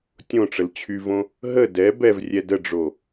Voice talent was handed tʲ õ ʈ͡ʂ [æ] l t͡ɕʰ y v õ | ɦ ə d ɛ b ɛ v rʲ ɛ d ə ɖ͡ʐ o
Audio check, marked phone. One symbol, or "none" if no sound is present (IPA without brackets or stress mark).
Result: ə